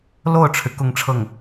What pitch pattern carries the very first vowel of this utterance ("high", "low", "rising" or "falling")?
falling